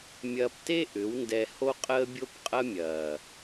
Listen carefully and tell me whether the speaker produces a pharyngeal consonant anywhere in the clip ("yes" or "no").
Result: no